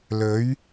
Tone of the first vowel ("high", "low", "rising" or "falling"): rising